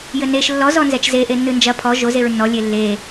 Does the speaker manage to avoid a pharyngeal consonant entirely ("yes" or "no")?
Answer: yes